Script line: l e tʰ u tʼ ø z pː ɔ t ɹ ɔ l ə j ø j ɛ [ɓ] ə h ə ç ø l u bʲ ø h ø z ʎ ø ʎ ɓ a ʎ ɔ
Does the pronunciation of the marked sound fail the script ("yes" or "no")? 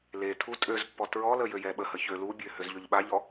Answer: no